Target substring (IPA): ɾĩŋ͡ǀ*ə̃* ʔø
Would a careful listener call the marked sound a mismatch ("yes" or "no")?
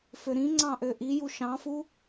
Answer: yes